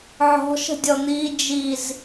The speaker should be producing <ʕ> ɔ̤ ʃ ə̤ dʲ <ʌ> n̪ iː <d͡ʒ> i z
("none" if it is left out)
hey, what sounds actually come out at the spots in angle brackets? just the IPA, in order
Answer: ʕ, ɔ, d͡ʒ

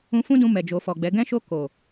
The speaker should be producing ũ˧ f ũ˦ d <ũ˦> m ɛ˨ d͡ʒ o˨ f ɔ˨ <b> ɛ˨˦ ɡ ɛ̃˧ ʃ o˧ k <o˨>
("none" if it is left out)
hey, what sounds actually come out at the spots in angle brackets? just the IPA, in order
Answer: ũ˧, ɡ͡b, o˨

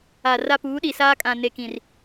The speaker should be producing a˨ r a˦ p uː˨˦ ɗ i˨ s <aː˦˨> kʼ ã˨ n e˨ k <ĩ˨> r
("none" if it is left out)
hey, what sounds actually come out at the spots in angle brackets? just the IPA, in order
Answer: aː˦, ĩ˨

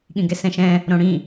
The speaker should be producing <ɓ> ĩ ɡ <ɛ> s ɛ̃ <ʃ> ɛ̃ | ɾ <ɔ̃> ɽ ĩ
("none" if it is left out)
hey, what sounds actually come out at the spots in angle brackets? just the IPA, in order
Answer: ɠ, ɛ, ʃ, õ

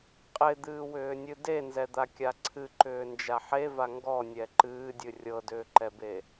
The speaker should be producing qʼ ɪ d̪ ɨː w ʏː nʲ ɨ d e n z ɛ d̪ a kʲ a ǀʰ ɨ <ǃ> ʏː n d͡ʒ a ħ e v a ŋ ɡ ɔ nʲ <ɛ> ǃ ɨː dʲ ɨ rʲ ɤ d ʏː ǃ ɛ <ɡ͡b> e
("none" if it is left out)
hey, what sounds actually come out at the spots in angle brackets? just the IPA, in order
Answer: ǃ, ɛ, b

